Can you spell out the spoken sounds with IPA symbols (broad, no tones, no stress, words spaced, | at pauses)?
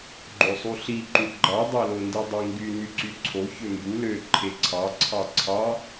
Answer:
ɡ͡ǃosˤuɬi ǃuɡ͡ǃɑ dˤælondidˤi ŋɡy nyǀyǀʰo çømbu lø ǃʰeǀʰɑ ǀʰɑǀʰɑ